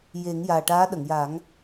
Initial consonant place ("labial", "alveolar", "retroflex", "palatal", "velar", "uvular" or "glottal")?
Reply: palatal